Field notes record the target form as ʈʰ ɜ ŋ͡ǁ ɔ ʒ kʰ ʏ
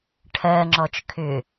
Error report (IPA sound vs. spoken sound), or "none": ʒ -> t͡ʃ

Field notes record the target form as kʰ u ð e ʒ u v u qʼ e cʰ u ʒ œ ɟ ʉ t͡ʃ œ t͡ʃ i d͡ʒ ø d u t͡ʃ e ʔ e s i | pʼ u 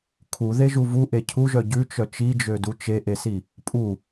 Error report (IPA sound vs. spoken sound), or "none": qʼ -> ʔ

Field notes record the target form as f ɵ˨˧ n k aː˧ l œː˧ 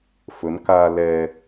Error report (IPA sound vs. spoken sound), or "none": œː˧ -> ɛː˧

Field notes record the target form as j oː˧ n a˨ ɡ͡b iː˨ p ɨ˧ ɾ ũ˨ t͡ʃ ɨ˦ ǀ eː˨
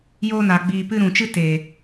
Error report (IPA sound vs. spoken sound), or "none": ǀ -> t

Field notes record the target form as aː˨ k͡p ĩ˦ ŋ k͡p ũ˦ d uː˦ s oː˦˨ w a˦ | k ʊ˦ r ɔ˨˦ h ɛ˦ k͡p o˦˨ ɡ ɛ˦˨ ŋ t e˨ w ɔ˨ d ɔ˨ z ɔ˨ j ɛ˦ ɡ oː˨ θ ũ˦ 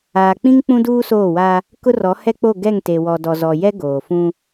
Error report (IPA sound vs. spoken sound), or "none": θ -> f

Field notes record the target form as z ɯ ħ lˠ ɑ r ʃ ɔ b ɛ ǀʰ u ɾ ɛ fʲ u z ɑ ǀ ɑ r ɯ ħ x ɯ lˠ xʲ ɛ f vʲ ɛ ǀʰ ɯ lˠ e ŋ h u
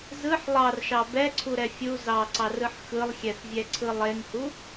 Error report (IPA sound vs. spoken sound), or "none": ɔ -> ɑ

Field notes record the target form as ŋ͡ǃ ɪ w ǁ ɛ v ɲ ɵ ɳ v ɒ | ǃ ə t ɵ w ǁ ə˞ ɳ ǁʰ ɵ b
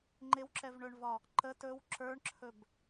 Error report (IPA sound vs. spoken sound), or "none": ɲ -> ɳ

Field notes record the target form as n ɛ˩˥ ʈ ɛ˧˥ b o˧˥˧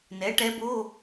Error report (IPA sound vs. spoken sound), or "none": none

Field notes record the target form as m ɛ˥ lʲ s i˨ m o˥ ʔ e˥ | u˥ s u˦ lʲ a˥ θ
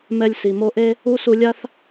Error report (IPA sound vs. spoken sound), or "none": none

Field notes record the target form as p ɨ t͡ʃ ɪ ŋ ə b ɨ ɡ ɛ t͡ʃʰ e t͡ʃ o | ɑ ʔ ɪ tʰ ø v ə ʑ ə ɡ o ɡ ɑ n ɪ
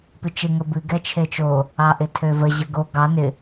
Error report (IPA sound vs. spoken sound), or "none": none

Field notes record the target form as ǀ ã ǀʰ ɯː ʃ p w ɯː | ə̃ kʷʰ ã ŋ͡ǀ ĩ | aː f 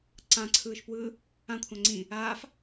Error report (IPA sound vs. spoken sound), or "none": ə̃ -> ã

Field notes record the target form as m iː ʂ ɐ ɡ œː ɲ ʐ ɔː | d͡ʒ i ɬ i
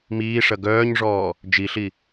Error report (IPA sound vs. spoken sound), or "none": none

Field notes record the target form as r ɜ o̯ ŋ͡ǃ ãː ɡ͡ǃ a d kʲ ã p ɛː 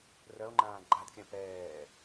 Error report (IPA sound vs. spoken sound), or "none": none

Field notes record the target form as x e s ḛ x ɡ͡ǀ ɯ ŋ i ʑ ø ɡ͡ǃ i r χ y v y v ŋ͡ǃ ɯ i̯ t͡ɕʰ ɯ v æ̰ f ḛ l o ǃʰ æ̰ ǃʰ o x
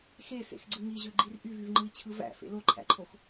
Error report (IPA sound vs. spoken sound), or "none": χ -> ʔ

